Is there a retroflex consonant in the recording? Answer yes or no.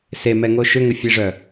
yes